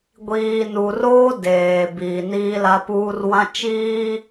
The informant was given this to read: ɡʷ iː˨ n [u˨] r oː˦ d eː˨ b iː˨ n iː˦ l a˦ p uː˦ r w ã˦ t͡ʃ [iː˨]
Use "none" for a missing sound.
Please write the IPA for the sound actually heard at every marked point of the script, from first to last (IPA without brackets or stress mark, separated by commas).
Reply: u˨, iː˦